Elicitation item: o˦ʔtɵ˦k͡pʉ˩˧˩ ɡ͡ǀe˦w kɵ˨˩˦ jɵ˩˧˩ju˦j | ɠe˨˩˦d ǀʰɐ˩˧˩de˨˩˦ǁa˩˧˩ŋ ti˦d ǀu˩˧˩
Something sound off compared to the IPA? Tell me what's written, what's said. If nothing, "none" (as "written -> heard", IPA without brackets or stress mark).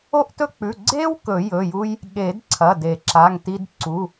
none